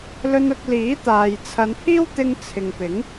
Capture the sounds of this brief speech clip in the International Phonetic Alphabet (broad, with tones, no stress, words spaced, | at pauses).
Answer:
lɵ˧nʊ˧k̚liː˨˥t̪aː˨j t͡sʰɐ˨˧npʰiː˥wt̪ɪ˧ŋ t͡sʰɪ˨ŋpɪ˨˥ŋ